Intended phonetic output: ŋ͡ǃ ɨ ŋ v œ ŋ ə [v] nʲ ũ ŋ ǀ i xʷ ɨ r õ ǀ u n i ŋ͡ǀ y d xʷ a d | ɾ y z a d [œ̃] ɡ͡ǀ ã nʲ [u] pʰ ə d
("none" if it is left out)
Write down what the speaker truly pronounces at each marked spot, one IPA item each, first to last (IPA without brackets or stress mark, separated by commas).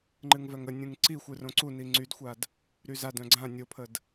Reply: none, œ̃, o